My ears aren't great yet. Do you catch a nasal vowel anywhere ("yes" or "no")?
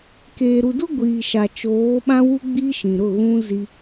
yes